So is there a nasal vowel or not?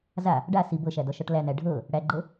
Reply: no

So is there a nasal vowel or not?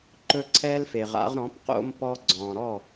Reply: yes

